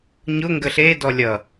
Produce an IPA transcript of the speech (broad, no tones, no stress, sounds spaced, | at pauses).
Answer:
ɲ ʊ ŋ ɡ ə ɬ e d ɔ lʲ ʌ